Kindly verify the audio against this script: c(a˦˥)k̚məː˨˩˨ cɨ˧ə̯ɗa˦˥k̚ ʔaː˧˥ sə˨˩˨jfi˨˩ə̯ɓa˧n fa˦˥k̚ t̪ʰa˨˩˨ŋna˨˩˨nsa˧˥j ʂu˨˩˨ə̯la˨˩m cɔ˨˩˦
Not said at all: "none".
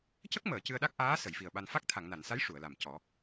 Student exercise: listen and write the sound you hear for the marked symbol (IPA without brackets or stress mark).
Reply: ə˦˥